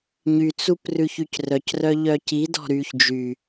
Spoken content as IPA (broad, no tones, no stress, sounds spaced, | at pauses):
ɲ y t͡s u p r ʉ ç y c r œ c r œ ʎ œ c i d ɔ̤ ɾ y ç d͡ʒ y